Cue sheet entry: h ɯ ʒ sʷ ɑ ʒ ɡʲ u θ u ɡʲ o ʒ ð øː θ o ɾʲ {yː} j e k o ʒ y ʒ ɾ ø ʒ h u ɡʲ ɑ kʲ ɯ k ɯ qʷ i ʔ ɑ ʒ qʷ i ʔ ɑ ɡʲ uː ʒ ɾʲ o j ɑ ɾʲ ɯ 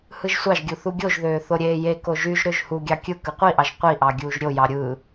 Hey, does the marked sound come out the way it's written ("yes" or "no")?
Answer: no